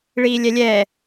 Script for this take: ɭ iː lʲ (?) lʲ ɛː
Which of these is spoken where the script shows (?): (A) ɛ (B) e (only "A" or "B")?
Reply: A